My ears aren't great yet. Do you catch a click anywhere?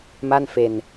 no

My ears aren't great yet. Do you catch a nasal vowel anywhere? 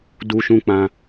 yes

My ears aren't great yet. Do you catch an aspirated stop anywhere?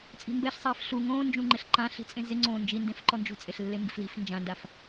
no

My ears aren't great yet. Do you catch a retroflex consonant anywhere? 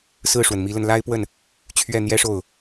yes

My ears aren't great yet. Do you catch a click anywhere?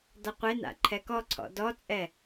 yes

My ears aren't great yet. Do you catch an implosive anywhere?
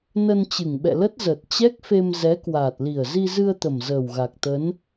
yes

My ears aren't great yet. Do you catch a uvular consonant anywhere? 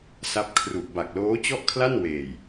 no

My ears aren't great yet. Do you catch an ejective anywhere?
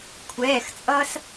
yes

